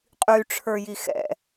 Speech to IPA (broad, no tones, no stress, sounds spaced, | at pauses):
qʼ y ʈ͡ʂʰ ə˞ j i x ɛ̰